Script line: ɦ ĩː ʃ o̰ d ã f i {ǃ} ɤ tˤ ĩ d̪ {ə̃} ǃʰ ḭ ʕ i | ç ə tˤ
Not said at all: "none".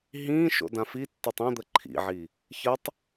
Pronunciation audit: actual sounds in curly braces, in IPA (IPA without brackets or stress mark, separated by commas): tː, ə